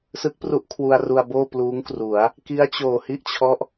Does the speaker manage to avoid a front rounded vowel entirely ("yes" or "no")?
yes